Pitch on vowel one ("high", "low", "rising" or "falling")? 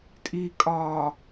low